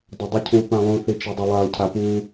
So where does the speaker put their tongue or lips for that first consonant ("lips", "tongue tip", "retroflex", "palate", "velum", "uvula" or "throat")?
tongue tip